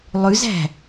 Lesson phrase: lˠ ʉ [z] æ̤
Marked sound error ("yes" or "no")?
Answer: no